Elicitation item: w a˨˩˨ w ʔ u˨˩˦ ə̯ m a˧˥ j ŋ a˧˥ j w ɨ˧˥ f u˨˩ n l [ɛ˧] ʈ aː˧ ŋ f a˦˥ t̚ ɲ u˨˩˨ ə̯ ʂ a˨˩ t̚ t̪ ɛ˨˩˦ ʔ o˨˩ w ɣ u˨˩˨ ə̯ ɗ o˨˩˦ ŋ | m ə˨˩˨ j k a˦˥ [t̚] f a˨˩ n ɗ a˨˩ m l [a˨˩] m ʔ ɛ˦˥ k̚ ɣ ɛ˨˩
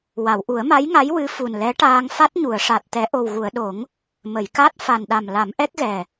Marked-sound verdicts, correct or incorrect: incorrect: ɛ˧˥, correct, incorrect: a˨˩˦

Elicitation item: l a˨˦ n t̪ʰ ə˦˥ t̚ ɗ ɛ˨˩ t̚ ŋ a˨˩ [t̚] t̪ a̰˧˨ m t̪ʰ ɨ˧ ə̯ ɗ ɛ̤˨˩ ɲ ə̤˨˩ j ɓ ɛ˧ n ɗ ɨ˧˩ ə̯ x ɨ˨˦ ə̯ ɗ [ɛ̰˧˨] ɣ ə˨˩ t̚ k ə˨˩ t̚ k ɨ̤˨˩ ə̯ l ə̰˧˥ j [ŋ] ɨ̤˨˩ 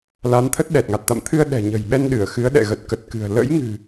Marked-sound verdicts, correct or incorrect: correct, correct, correct

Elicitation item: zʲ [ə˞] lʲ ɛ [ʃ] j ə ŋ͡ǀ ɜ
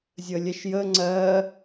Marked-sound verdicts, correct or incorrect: incorrect: ə, correct

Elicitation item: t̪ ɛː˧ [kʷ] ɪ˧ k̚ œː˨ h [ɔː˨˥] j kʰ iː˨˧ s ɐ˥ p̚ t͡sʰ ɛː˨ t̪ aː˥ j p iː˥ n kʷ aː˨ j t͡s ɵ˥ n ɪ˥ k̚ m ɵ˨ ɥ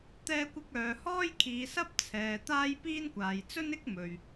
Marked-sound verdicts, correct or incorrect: correct, incorrect: ɔː˥

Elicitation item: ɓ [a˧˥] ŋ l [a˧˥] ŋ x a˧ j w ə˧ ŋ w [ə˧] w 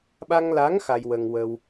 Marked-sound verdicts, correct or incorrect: incorrect: a˧, correct, correct

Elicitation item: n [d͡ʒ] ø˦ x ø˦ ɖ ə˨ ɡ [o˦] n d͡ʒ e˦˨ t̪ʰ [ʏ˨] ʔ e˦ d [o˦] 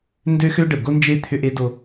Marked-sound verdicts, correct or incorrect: incorrect: d, correct, incorrect: ʏ˦, correct

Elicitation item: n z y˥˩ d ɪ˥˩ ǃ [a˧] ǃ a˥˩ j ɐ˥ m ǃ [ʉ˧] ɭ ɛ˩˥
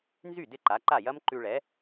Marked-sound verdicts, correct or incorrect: incorrect: a˩˥, correct

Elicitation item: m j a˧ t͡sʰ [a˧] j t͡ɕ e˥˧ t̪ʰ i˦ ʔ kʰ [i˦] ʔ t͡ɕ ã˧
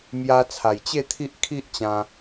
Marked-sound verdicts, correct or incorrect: incorrect: a˨˩, correct

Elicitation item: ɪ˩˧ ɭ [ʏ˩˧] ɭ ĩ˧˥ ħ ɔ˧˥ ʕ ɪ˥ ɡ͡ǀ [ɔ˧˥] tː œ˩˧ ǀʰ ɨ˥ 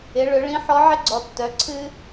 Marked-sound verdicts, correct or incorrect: correct, incorrect: ɔ˩˧

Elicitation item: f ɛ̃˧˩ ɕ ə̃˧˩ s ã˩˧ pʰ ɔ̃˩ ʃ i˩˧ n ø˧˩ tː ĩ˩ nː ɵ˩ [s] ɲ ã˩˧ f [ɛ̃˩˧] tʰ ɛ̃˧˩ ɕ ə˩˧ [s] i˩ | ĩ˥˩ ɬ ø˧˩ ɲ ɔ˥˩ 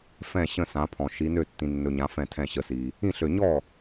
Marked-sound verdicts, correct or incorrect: incorrect: none, incorrect: ɛ̃˧˩, correct

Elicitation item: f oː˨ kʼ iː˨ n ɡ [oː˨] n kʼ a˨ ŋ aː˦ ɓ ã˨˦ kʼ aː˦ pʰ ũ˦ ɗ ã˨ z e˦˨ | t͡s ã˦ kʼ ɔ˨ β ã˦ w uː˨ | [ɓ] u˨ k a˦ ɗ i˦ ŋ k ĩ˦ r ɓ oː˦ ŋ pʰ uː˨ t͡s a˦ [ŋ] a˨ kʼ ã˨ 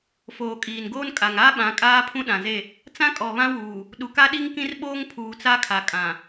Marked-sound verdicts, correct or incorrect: incorrect: oː˦, incorrect: ɗ, incorrect: kʰ

